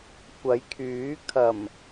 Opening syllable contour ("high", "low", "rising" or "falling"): rising